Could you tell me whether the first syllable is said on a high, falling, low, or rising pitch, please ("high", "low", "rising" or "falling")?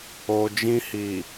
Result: low